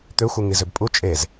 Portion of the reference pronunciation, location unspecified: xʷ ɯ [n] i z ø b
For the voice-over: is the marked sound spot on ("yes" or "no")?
no